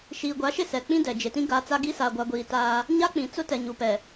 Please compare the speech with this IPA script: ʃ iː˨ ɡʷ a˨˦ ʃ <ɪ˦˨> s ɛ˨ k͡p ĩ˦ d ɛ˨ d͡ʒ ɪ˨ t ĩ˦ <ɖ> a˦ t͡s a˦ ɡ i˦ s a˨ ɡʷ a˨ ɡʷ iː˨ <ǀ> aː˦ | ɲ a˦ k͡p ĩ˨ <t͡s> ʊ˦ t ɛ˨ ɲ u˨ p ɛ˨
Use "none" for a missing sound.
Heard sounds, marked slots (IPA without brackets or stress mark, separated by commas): ɪ˦˨, ɡ, t, t͡s